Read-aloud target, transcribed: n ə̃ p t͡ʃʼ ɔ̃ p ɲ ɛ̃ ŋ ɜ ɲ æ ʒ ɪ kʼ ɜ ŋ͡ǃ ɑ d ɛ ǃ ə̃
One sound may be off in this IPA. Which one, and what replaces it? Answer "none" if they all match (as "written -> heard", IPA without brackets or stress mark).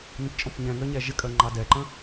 none